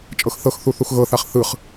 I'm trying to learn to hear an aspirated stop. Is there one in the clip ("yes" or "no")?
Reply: no